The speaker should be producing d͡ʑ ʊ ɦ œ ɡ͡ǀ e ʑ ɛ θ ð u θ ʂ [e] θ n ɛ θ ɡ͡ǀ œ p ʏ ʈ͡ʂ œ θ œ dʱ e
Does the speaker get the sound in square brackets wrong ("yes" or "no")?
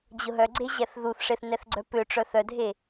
no